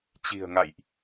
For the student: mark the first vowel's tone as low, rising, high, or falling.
low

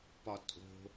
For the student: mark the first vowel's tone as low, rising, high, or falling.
low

